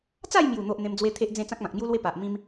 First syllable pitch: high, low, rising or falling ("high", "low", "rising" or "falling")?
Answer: falling